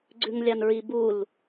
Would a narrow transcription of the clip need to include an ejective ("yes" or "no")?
no